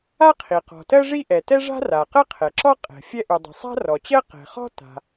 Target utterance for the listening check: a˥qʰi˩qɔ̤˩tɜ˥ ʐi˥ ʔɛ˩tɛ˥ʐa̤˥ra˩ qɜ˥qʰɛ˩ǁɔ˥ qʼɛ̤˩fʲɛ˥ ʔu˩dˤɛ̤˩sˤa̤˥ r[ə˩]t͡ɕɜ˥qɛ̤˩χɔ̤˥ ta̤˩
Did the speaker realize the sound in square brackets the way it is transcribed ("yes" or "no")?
no